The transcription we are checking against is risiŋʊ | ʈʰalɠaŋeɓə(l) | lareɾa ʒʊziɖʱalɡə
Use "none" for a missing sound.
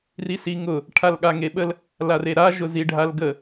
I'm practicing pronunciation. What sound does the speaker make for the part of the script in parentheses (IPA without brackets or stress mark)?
l